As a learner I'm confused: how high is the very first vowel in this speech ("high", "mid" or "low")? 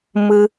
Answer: high